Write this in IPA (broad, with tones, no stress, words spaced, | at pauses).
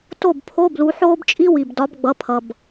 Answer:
to˥˩bpʰo˧˥˧ blu˨˦ħoː˥bt͡ʃʼi˥ wi˩bdɒ˨˦bɡ͡bʌ˩˧˩pʰʌ˩b